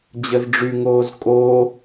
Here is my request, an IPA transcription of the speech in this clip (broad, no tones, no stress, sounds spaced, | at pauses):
d͡ʑ ə z ɖ͡ʐ y ŋ oː z kʼ oː